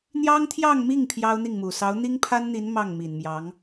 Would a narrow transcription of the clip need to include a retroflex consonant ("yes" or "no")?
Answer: no